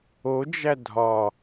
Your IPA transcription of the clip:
o d͡ʒ æ dʱ ɒ

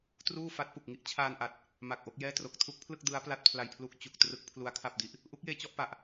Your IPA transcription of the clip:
t r uː˥˩ f a˦˥ t̚ p u˨˩ k̚ ŋ i˦˥ ʔ t͡ɕʰ aː˧ n ʔ a˨˩ t̚ | m a˨˩ k̚ ʔ o˥˩ k̚ j ɛː˥˩ t r o˨˩ k̚ tʰ u˦˥ k̚ pʰ l ɯ˥˩ k̚ d ɯ˦˥ a̯ p l a˦˥ t̚ pʰ l a˧ j pʰ l u˦˥ k̚ t͡ɕ u˨˩ k̚ t r ɯ˦˥ k̚ pʰ l u˦˥ a̯ kʰ a˥˩ p̚ d i˦˥ ʔ | ʔ u˦˥ k̚ j eː˧ t͡ɕ ɔ˥˩ ʔ p a˨˩ ʔ

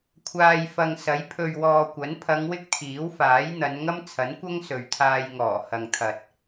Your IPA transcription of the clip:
kʷʰ aː˨ j f ɐ˨ ŋ s ɐ˨˥ j pʰ ɵ˨ ɥ w ɔː˨ kʷ ɐ˨˥ n pʰ ɐ˨˧ ŋ w ɪ˥ k̚ t̪ʰ iː˨˥ w f aː˨˥ j n̪ ɐ˨˧ n ŋ ɐ˥ m t͡sʰ ɐ˨˥ n kʷ ɐ˥ ŋ s ɵ˨ ɥ t̪ʰ aː˧ j ŋ ɔː˨˩ h ɐ˨ ŋ t̪ʰ ɐ˨ t̚

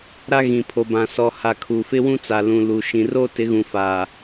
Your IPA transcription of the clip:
ɾ a˦ ɣ ĩ˨ pʰ o˨ b ã˨ s ɔ˨ h a˨ kʰ u˨ f ɪ˦ w ũ˦ t͡s a˨ l ũ˨ l u˨ ʃ ĩ˨ r oː˦ t ɪ˨˦ ɣ ũ˨ f aː˨

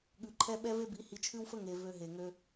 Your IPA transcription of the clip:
ɠ ʉ˨ ǃʰ ɛ˦ ɓ ɛ˦ v e˦ b i˨˦ h i˧ t͡ʃʰ ʉ˦ w f ə˦ ŋ e˨ v ø˧ ɦ e˨ ŋ ø˧

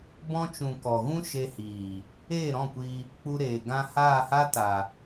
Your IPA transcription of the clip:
b ɔ̃˧ t͡ʃ ũ˨ k ɔ˨ ɣ ũ˦ ʃ e˧ h iː˨ | eː˦˨ ɾ ɔ̃˦˨ kʷ iː˧ | k͡p u˧ ɾ eː˨ ɡ ã˧ h aː˦˨ h a˦ t a˨

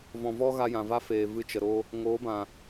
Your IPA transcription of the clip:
v ɔ̃˨ v ɔ˦ ɣ a˧ j ã˨ v a˦ f eː˨ v ɨ˧ t͡ʃ ə˨ ɾ oː˧ | ŋ oː˨˦ b ã˨

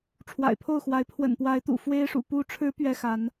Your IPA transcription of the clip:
ʈ͡ʂʰ w a̰˨˩ ɪ̯ pʰ o˥˨ ʊ̯ x w a˨˦ ɪ̯ pʰ w ə̰˨˩ n p w a˨˦ ɪ̯ t̪ ṵ˨˩ f w e˦ ɪ̯ ʂ ṵ˨˩ p u˨˦ ʈ͡ʂʰ ɻ̩˨˦ p ɥ ɛ˦ x a˨˦ n

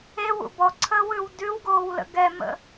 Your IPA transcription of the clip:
e w ṵ b ɔ ǀʰ əː w ʉ w d ʉ w ɡ oː w l ə̰ ɡ ɛ m ə̰

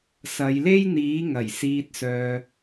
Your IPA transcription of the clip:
s ɐ˨˧ j l e˥ j n̪ iː˨˥ ŋ ɐ˨˩ j s iː˨ t̚ s œː˨

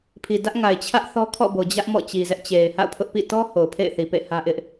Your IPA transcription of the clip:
pʰ i˨ d ä˦ ʔ ŋ a˨ ɪ̯ t͡ɕʰ ä˦ ʔ θ ɔ˦ kʰ ɔ̰˦˨ b o˨ d͡ʑ ä˦ ʔ m ɔ̰˦˨ t͡ɕ i˨ z ɛ˦ ʔ t͡ɕ e˨ ɪ̯ h a̰˦˨ ʊ̯ pʰ ʊ˦ ʔ p ḭ˦˨ t ɔ˦ h o˨ ʊ̯ pʰ ḛ˦˨ ɪ̯ θ i˨ p ḛ˦˨ h ä˦ ʔ ɪ˦ ʔ

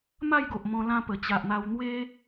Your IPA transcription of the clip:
m a˥˧ j ɡ o˨ ʔ m ɔ̃˧ l ã˧ p ə˨˩ t͡ɕ a˨ ʔ n̪ a˧ w n̪ w e˦

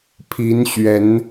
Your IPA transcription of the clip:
pʰ i˨˦ n ɕ ɥ ɛ˨˦ n

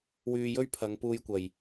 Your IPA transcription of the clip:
w yː˧ j ɵ˥ ɥ pʰ ɐ˨˧ ŋ p uː˧ j kʷ ɐ˨˩ j

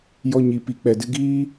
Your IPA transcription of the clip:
j ɔ˦ ɲ i˧ p i˧ k͡p ɛ˨ d ɨ˧ ɡ iː˦

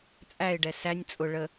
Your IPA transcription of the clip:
t͡sʼ æ ɪ̯ ɖ ɛ s æ nʲ t͡sʼ ʊ ɭ ə

